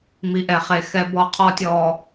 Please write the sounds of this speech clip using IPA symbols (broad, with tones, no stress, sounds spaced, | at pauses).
m i˨ ʔ ɛ˨ χ e˨ x ɛ˦ b ɔ˦ qʰ ɔ˦ tʲ ɔː˨